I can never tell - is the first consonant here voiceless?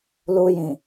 no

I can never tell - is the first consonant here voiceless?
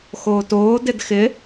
yes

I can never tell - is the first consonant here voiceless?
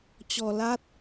yes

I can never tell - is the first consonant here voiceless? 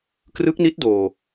yes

